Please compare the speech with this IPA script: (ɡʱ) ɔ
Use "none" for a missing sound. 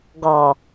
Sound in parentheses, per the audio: ɡ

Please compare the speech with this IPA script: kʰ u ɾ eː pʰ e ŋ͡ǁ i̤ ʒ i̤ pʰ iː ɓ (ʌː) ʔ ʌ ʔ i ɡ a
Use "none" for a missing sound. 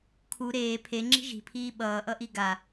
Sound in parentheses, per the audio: ʌː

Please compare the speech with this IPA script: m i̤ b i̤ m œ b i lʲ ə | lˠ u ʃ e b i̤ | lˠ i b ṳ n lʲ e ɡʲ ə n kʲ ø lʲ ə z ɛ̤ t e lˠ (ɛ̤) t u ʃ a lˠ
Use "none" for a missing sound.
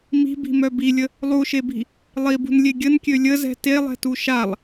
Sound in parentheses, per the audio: ɛ̤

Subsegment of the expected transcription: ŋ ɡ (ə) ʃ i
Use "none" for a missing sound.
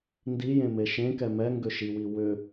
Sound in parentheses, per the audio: ʏ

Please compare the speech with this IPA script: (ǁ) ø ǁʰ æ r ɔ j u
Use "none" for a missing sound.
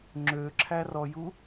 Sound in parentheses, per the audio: ŋ͡ǁ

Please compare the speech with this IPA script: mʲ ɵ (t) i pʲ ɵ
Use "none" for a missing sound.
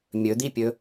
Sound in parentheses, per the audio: d̪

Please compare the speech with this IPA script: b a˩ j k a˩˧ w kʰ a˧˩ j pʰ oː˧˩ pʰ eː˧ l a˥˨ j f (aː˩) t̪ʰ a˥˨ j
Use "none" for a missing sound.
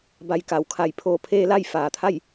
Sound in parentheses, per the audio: aː˩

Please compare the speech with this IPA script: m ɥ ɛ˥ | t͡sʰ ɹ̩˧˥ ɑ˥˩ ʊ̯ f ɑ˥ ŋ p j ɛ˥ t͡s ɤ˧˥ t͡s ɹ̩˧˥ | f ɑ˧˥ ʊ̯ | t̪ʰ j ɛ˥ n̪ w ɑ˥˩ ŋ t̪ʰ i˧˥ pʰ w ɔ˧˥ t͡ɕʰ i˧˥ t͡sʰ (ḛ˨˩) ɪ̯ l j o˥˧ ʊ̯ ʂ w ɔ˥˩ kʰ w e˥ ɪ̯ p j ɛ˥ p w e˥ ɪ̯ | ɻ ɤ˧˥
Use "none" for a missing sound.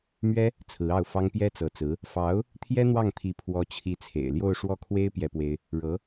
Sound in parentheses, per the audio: ḛ˨˩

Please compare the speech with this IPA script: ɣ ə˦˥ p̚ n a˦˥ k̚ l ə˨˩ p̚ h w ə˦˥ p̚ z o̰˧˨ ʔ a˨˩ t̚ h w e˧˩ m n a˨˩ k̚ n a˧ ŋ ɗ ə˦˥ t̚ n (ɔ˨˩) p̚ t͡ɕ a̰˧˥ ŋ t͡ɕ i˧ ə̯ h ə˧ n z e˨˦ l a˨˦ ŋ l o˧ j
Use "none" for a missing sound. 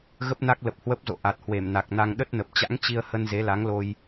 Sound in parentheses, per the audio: ə˨˩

